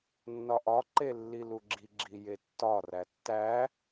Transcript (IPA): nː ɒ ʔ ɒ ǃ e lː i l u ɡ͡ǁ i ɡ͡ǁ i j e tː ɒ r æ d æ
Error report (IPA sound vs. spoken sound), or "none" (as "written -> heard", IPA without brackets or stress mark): d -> tː